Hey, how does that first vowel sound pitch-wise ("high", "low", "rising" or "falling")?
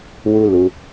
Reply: high